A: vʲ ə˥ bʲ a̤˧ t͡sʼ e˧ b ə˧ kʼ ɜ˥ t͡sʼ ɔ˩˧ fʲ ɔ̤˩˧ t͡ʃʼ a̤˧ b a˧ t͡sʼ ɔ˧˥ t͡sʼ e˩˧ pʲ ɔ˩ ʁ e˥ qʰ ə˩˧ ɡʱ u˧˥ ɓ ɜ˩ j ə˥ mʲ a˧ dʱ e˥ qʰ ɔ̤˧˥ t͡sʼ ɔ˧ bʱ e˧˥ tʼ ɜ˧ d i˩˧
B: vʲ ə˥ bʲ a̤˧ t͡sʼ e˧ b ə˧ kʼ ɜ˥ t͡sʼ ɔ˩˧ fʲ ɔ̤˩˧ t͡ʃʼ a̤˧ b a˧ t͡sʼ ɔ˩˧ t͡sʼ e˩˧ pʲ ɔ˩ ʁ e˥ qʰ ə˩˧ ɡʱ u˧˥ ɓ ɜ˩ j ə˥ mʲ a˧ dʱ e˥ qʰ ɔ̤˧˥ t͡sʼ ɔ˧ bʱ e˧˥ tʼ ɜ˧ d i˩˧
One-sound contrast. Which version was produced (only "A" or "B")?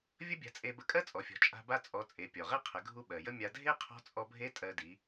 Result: B